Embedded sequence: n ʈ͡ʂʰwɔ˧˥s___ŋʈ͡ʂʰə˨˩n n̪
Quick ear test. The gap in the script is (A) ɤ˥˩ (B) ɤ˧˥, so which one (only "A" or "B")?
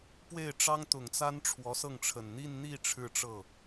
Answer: A